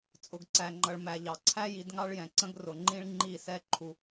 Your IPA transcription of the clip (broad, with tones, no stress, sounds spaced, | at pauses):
t͡sʼ ʊ˨ ɡ ǀ æ˨ ŋ͡ǃ ʌ˨ ɭ m æ˨ ʎ ɑ˨ ǀʰ æ˦ j i˨˦ d ŋ ɑ˦ ɭ j ɛ̃˨ ǀ ə̃˦ ɡ r ʊ˨ ŋ͡ǃ ĩ˦ ɭ ŋ͡ǃ i˦˨ s ɛ˦ ǃʰ u˦